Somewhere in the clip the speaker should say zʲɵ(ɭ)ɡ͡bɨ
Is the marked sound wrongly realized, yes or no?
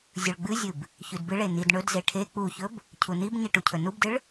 no